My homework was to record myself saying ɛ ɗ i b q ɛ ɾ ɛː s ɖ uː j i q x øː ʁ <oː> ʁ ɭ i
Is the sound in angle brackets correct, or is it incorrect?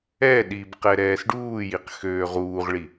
incorrect